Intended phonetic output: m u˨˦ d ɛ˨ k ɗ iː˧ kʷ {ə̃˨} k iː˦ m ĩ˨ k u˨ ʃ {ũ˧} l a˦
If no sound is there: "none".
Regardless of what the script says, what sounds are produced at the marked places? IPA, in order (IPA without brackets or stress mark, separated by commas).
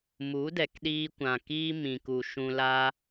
ã˨, ũ˧